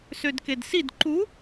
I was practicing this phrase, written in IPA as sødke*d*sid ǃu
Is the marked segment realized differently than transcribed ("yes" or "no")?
no